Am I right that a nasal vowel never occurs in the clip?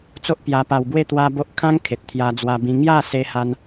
no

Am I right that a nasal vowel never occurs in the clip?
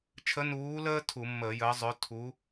yes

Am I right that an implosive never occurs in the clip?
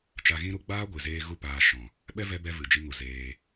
no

